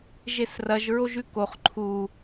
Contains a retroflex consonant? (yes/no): no